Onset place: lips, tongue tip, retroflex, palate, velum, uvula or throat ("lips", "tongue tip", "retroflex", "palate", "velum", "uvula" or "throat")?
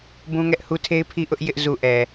lips